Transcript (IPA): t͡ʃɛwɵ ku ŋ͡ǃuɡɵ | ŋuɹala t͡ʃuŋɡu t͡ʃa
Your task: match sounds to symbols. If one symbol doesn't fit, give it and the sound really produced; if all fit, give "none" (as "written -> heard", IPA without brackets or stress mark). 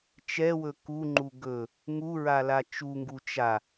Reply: none